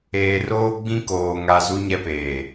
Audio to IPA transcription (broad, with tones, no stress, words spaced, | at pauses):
eː˨roː˦ɡ͡bĩ˦koː˨ ŋa˨ zu˦ɲɛ˦peː˨